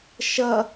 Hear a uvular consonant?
no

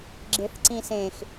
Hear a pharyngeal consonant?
no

